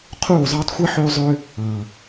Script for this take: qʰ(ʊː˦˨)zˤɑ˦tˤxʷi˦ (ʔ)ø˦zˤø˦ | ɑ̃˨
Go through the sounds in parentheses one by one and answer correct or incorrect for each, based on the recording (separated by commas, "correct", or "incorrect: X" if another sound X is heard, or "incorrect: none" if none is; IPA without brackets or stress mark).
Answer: incorrect: uː˦˨, incorrect: ħ